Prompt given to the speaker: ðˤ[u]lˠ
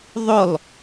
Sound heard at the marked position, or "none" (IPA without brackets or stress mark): ʊ